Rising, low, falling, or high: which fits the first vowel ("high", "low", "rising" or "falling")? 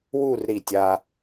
falling